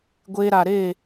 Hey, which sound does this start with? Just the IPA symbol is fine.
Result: ɡʷ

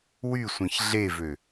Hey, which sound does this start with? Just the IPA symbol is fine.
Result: w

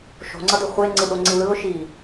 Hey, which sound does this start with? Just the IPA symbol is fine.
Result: ʃ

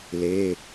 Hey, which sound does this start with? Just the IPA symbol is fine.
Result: l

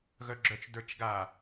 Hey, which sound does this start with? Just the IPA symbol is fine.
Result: ɣ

